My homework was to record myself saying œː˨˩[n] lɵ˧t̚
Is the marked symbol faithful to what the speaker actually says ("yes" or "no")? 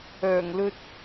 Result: no